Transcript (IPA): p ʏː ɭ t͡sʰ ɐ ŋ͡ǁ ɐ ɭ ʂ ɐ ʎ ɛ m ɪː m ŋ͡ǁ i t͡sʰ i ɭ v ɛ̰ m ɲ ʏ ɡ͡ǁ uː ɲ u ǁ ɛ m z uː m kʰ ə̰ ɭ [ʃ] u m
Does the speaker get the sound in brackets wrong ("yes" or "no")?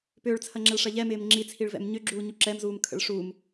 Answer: yes